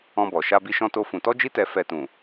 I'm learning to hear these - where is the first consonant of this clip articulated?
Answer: lips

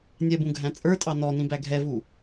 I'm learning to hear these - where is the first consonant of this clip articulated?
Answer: tongue tip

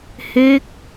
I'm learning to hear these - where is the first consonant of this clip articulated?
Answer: throat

